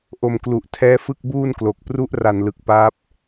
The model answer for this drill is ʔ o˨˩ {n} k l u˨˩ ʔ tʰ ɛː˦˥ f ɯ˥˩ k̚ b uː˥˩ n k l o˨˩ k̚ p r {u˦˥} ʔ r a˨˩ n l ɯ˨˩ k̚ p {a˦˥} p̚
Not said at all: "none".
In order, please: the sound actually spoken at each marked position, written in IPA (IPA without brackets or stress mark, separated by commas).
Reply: m, u˦˥, a˦˥